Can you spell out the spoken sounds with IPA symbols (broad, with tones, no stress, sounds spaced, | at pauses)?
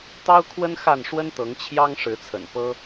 t̪ ɑ˦ ʊ̯ kʰ w ə˦ n x a˥˨ n ʂ w ə˦ n t̪ ɤ˨˦ ŋ t͡ɕʰ j ɑ˦ ŋ ʂ ɻ̩˨˦ t͡sʰ ə̰˨˩ n p ɤ˦